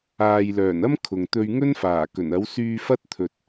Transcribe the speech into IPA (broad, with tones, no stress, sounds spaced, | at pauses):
aː˨ j l œː˨˩ n ɐ˥ m kʰ ʊ˨ ŋ t̪ ɵ˧ ɥ ŋ ɵ˥ n f aː˨˩ k ɵ˨˩ n ɐ˨˥ w s yː˧ f ɐ˥ t̚ t̪ʰ ɵ˨ t̚